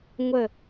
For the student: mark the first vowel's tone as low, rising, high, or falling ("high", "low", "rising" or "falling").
falling